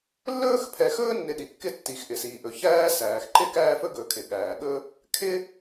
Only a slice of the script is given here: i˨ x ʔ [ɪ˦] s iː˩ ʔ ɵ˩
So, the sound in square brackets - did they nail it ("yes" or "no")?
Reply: no